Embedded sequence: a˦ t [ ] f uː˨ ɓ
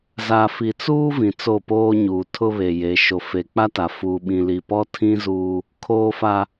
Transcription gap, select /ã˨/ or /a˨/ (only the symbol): a˨